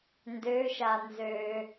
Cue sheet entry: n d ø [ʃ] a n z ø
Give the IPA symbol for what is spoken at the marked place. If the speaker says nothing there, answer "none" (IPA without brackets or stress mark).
ʃ